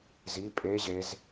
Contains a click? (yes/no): no